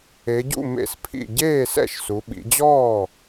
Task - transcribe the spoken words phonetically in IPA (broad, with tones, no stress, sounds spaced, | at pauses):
e˩˧ ɟ ṵ˥˩ m ḛ˥˩ s pʰ ḭ˥˩ ɟ eː˥˩ s ɛ̰˥˩ ʃ s u˩˧ ɓ ḭ˩˧ d͡ʑ ɔː˥˩